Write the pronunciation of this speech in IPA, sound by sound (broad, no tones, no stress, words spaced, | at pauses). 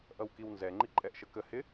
ʔʌwkiwnzɛ ŋ͡ǃiǃʼɛʔʃəkə hɪ